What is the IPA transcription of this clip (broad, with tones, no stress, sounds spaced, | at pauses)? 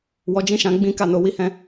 w ɔ˧ d͡ʒ ĩ˦ ʃ ã˧ ɡ͡b ĩ˦ k a˦˨ n o˧ w i˦ h ɛ̃˦